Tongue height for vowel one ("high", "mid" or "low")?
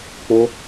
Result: mid